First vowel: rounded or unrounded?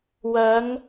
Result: unrounded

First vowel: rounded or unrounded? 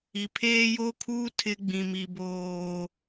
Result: unrounded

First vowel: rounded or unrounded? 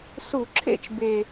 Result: rounded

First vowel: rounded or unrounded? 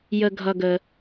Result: unrounded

